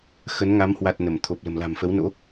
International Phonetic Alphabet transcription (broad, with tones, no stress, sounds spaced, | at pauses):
x ə˨˦ n ŋ a˨˦ m h w a˨˩ t̚ n ə˧˩ m t̪ʰ o˨˩ p̚ l ə̤˨˩ m l a̤˨˩ m f ə˨˦ w n o̰˧˥